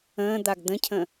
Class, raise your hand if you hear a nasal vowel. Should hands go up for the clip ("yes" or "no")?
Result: yes